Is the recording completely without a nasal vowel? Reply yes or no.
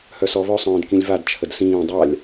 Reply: no